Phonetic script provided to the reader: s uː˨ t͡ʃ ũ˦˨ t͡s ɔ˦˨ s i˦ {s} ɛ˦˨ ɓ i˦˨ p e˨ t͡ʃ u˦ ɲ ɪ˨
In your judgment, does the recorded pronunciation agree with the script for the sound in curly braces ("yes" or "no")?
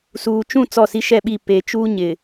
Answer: no